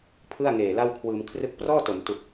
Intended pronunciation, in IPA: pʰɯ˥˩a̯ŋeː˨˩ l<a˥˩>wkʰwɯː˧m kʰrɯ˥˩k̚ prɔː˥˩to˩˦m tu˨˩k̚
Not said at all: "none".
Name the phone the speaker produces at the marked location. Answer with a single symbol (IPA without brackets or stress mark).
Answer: a˥˩